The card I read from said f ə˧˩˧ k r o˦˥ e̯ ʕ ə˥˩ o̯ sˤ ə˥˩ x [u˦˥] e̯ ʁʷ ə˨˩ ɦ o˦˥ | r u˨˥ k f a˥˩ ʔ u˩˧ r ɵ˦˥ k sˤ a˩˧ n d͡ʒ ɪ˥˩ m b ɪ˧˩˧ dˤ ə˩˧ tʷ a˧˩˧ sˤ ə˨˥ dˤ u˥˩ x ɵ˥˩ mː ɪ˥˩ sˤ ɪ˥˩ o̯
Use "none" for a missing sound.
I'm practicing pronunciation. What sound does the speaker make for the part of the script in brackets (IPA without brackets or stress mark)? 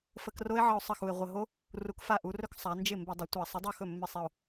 u˨˩